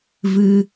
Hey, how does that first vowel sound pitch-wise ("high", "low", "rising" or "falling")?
high